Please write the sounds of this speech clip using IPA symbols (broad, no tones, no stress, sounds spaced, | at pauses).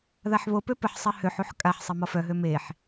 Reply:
ð a ħ β o p ø p ə ħ sˤ ɛ h ø ħ u ħ kʼ a ħ sˤ i m ɔ f œ ɦ ø m e ħ